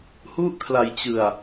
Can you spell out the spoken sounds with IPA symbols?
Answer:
h u˥˩ ʔ kʰ l a˧ j t͡ɕ ɯ˧ a̯

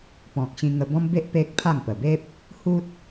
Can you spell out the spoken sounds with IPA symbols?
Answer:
p ɔ̃˨ k̚ ɕ ĩ˧ ŋ ə˧ b ɔ̃˦ m b e˦ ʔ p e˦ k̚ pʰ a˥˧ ŋ p ə˨˩ b e˦ p̚ | h u˦ t̚

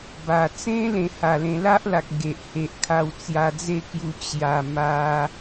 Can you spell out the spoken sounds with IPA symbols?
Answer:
b a˨˩ t͡s ẽ˦ l ẽ˧ h a˨˩ l ẽ˧ l a˦ ʔ l a˨ k̚ ɡ e˨ ʔ h e˨ ʔ kʰ a˧ w t͡s j a˧ d͡z e˥˧ k j u˧ t͡ɕ j a˨˩ m a˧

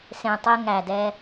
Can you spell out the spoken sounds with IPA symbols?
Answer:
s ẽ˨ tˤ e˧ ŋ æ˨ d ɛ˧

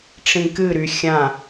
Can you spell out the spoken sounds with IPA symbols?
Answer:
ʈ͡ʂ ĩ k ɨ ɾ y xʲ ã

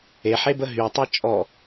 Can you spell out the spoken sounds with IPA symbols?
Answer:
e ħ e b ə ɦ y tˤ i t͡ʃʼ ɔ

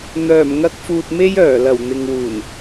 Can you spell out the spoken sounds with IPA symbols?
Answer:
n̪ œː˨˩ m ŋ ɐ˧ k̚ f uː˧ t̚ m e˥ j œː˨˩ l ɐ˨˩ w n̪ ɪ˨ ŋ w uː˨˩ n

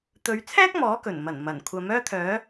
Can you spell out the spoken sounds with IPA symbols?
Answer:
t̪ ɵ˨˧ ɥ t͡sʰ ɛː˥ k̚ m ɔː˨˥ k ɵ˨˩ n m ɐ˨˩ n m ɐ˨˩ n kʷʰ ɐ˨˥ m œː˥ t̪ʰ œː˨˥

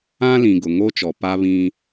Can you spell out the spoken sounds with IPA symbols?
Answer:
ã˦ l ĩ˨ ɡ ʊ˨ ŋ o˦ t͡ʃ ɔ˨ p a˦ β ĩ˦

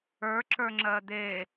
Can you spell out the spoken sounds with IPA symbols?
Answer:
ə˞ ǁ ə˞ ŋ͡ǁ ɜ d̪ e

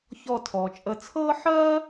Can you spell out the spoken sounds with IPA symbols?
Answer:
ç ɔ˦˨ tʰ ɔː˨ t͡ʃʼ ə˦˨ t͡sʰ ɤː˥ ħ ɜː˥

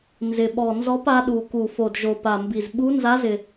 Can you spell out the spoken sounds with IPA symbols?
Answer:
n z ɪ˨˩ ɓ ɔ˨˩ n z ɔ˧˥ p a˧˥ ɗ u˨˩ k u˨˩ f o˨˩ d ʒ o˨˩ p a˨˩ m b i˨˩ z ɓ u˧˥ n z a˧˥ z ɪ˨˩

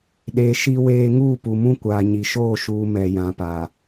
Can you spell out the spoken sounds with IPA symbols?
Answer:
ɗ e˨ ʃ i˦ w eː˦ ŋ uː˦˨ p u˨ m ũ˦ kʷ aː˨ ɲ i˨ ʃ oː˦˨ ʃ uː˦ m ɛ˨ j ã˨ p a˨

